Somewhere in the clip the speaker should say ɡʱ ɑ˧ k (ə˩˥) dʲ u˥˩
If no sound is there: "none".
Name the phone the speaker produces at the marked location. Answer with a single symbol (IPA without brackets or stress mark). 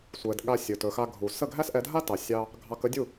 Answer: ə˥